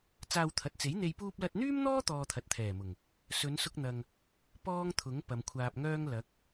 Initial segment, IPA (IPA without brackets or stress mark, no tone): t͡s